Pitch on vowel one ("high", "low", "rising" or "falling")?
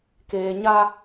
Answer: low